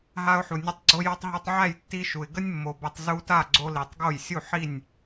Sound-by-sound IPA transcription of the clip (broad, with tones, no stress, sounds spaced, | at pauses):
ɦ a˦ ʊ̯ ħ u˨ nʲ ə˦ tˤ ɡ͡ǀ o˦ j ɔ˦ tˤ ɦ ɔ˦ tˤ ʕ æ˥˨ j tː i˦ ʃ u˨ ɪ̯ ɡ ə˦ nʲ mː o˨ b ə˦ tˤ z u˦ t a˥˨ ɡ͡ǀ o˦ l i˨ tˤ ɡ o˥˨ j sʲ u˥˨ ħ i˥˨ nʲ